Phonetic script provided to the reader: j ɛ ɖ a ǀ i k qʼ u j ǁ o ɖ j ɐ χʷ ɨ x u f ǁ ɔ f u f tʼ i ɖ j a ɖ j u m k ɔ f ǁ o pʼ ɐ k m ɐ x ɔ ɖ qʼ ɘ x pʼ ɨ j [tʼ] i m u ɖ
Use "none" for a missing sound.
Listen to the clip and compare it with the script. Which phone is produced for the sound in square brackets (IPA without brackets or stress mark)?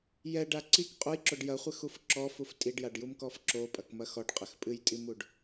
tʼ